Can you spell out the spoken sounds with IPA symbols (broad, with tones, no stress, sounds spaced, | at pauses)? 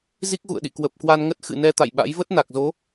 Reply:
z i˦˥ k̚ ɣ ṵ˧˨ ə̯ ɗ ḭ˧˨ k w ə˨˩ p̚ k w a˧ n ŋ ə˦˥ t̚ x ɨ̰˧˨ n ɛ˧ t̪ a̰˧˨ j ɓ a̰˧˥ j v ə˦˥ t̚ n a˨˩ k̚ z o˨˦